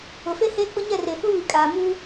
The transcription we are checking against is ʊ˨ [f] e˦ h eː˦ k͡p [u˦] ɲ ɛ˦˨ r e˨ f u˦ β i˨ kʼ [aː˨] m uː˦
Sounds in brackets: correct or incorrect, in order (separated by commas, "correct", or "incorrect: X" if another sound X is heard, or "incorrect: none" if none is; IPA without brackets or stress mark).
correct, incorrect: ʊ˦, correct